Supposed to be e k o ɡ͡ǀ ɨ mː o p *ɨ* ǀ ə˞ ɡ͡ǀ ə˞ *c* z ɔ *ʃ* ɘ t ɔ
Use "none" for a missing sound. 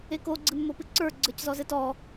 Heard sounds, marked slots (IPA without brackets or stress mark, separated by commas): ɨ, c, z